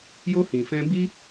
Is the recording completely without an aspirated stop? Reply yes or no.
yes